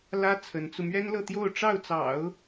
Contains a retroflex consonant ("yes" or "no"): yes